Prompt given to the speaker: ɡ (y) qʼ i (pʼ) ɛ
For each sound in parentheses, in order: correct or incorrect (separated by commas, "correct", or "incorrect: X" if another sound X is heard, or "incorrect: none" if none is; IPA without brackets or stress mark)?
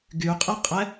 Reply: correct, incorrect: qʼ